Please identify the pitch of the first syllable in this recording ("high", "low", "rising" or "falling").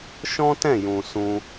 high